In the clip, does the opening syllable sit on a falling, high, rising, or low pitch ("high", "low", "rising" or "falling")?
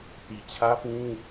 low